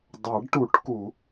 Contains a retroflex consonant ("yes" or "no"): yes